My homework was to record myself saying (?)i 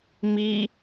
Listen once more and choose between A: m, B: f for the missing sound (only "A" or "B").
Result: A